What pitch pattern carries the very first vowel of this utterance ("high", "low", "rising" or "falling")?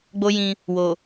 high